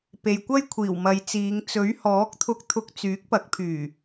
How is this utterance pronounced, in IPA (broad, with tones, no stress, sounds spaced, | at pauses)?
p e˨ j kʷ ɐ˥ j kʷʰ iː˨˩ w m ɐ˨ j t͡s iː˨˧ ŋ t͡s ɵ˨˥ ɥ h ɔː˨˥ k̚ t̪ʰ ʊ˧ k̚ t̪ʰ ʊ˧ k̚ t͡s yː˨˥ k̚ p ɐ˨˥ k̚ pʰ yː˨˩